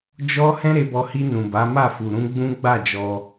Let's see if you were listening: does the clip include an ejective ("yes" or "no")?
no